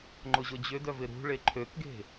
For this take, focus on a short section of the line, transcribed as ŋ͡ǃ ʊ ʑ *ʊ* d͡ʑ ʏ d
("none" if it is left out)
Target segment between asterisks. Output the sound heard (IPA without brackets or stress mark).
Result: ʊ